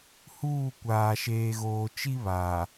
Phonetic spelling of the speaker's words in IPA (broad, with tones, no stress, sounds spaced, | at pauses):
h uː˦˨ kʷ aː˨ ʃ eː˨ ɣ oː˨ t͡ʃ i˦ β aː˨